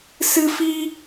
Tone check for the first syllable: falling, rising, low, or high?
high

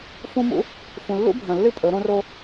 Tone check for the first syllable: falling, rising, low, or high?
high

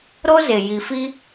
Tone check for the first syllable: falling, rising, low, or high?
high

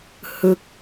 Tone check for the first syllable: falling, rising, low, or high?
falling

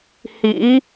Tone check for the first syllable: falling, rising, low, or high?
rising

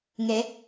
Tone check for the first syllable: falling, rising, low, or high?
rising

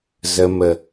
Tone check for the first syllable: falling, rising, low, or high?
low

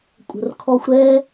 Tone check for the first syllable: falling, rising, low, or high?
low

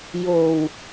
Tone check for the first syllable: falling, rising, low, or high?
low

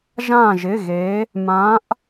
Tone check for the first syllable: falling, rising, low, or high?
falling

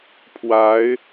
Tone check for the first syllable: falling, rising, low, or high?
rising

